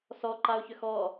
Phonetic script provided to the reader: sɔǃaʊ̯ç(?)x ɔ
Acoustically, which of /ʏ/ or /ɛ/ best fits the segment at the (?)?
ʏ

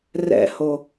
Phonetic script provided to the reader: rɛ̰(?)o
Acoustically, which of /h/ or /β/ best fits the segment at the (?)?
h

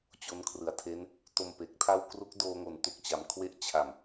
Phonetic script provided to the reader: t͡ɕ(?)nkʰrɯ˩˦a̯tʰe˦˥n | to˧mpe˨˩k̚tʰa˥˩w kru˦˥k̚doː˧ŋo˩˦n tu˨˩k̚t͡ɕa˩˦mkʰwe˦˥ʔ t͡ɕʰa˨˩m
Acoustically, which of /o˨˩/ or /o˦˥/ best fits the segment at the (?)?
o˦˥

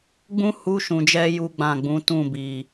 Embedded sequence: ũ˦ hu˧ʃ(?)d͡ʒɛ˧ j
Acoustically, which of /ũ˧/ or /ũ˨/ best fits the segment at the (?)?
ũ˨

